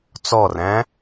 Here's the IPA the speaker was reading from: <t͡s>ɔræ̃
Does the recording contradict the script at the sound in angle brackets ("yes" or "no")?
no